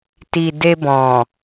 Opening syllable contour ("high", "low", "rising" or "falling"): low